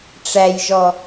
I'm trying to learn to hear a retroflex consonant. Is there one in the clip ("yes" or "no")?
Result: yes